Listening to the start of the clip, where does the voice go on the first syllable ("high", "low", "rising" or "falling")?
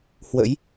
rising